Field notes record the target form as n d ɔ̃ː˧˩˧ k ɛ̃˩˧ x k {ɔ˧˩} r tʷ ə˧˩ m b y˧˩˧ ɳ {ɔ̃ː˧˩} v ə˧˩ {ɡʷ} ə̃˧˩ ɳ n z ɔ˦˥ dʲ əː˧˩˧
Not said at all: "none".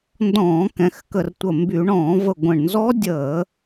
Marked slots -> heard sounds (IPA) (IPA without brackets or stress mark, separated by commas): ə˧˩, ɔ̃ː˧˩˧, ɡʷ